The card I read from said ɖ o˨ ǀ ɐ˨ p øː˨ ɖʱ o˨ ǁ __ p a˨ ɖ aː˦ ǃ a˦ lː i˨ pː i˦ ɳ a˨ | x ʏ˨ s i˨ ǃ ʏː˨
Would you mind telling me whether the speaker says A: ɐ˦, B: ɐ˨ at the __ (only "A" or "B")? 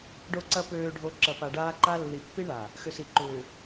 B